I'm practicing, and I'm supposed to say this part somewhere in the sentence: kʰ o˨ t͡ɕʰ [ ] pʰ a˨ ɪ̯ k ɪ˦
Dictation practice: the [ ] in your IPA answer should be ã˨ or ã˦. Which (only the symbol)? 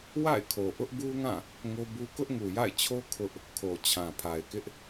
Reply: ã˨